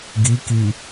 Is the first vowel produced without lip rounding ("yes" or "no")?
yes